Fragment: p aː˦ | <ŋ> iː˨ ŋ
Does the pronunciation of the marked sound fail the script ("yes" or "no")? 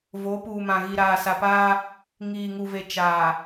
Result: no